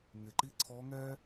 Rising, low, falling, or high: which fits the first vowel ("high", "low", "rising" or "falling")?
low